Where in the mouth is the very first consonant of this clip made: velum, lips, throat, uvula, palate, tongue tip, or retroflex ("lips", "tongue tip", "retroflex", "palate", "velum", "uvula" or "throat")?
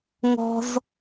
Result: velum